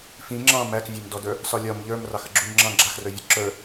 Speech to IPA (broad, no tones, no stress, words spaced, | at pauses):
fĩ ŋ͡ǁɑ̃ mækvʲamdɔdə˞ | sɒlʲɒm ʎə˞m rɑxəɡ͡ǁuɲŋ͡ǁɑ̃ ɡ͡ǁaxrə˞vʲɔ ǁə˞